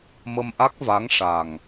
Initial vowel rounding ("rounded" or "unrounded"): unrounded